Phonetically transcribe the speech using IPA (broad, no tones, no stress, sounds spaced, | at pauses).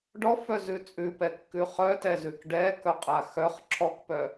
ɖ ɔ f œ z ʉ t͡sʼ ʉ p ɛ kː ʉ χ œ t ɛ z ʉ k ɖ ɛ k œ qʼ a x œ χ ǁʰ ɔ k p œ